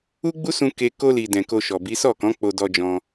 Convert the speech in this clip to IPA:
u˦ɡ͡bu˦sũ˧ ke˧ ko˧li˨ dɛ̃˨ko˧ʃɔ˨bi˨˦ sɔ˦˨kɔ̃˨˦k͡po˧ dɔ˧d͡ʒɔ̃˧

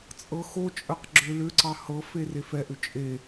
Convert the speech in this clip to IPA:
t͡sʼɤxo t͡ʃʼəqɡ͡ǁʏ lʏǀɑ hɤfe refɛʔʏ t͡ʃʼe

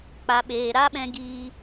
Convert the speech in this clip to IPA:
k͡pa˨ɓeː˨ ɾa˦ɓɛ̃˧ ɡiː˧

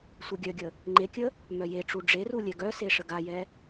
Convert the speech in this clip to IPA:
sʷeɡʲœɡʲə | ŋ͡ǃekʲə | mœjeʈ͡ʂu ɖ͡ʐeru lʲɛɡœse ʂəɡajɛ

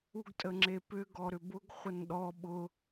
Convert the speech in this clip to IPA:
uɡtʼəŋ͡ǁepʏ ɡɔɾʏbʊɡ χʷənɗɔ ɓʊ

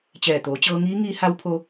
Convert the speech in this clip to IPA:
t͡ɕɛː˧˩t̪oː˩˧t͡ɕɤː˧ŋiː˧˥ ŋiː˧˥ha˧˥wpʰo˧

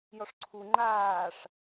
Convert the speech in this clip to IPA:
jɔʂǀʰu ŋ͡ǃaːʂ

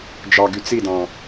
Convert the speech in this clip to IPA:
d͡ʒɑɡy t͡sidɑ̃

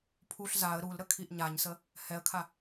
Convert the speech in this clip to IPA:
pʰuɬ zaə̯ ɾulɾəkʰiʔ ɲaɲsə | hɛə̯kʰa

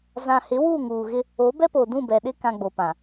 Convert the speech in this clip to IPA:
zã˨hɪ˨˦ wuː˦˨ŋuː˨ɣɪ˦ | o˨˦bɛ˦poː˨ dũ˦˨bɛ˨ɗɪ˦ kã˨ ɡ͡bo˨pã˨

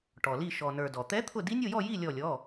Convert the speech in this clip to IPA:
ʈɔ˩li˧˩ ʃɔ˩nə˞˩ dɔ˩t̪ɛ˧˥ t̪ʰʊ˥˨ di˧˥nʲo˥˨jɔ˥˨ ji˥˨ lʲɔ˧˩lʲɔ˩˧˩

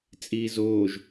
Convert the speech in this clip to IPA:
t͡sʼiːzoːʒ

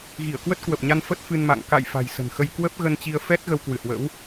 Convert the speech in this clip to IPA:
ɣi˧˩ə̯kwə˦˥t̚kwə˨˩p̚ɲa˧n fə˦˥t̚fɨ˧nma̰˧˨ŋ ka̰˧˨j fa̤˨˩jsə̤˨˩nxə˧j kwə˦˥p̚ɣə˧nt͡ɕi˧ə̯ fɛ˦˥t̚ ɣə˧wkwɨ˧˩hwə̰˧˥w

